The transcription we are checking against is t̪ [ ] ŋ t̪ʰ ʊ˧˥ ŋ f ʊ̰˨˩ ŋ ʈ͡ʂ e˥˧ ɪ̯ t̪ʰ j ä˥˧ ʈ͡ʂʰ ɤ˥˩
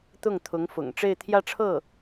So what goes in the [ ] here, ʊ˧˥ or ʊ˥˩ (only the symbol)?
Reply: ʊ˥˩